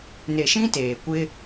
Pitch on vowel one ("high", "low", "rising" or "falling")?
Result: low